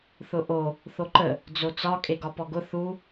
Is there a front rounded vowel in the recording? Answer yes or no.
no